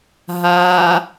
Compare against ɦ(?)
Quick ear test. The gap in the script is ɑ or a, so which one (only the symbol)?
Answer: a